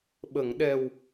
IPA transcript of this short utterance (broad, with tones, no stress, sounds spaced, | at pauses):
ɓ ə˨˩˨ ŋ ɗ ɛ˨˩ w